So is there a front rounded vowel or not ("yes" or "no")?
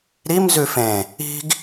no